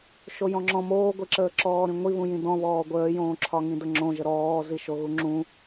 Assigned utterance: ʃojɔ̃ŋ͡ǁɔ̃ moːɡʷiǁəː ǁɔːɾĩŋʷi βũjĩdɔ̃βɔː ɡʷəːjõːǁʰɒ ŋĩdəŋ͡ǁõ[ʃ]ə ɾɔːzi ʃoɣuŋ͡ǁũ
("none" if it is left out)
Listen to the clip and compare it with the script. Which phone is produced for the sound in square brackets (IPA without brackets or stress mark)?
ʒ